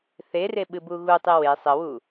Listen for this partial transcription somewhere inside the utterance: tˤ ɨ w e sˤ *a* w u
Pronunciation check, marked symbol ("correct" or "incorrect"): incorrect